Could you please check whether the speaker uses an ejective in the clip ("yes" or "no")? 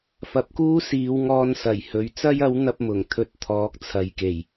no